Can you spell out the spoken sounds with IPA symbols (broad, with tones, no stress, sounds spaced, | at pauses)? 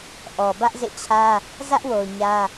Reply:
ʔ ɔ˨ b ä˦ ʔ z ḛ˦˨ t͡ɕʰ ä˦ | z ä˦ ʔ w o˨ ʊ̯ ɲ ä˦